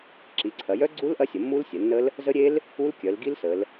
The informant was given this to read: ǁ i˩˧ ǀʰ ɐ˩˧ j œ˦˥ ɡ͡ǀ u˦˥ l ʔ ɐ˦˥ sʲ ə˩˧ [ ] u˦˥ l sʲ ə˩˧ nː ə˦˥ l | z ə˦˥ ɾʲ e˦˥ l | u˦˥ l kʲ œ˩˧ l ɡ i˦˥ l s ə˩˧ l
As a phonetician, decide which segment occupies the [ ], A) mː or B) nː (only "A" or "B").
A